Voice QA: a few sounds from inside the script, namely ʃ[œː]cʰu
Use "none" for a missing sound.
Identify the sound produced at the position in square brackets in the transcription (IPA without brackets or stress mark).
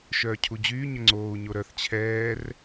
œː